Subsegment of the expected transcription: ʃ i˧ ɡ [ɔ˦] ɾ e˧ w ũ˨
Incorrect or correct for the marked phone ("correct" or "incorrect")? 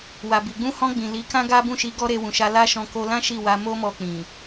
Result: correct